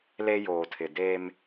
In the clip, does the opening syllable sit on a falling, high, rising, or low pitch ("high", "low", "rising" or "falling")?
high